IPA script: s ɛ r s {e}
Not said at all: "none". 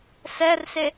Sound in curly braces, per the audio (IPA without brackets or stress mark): e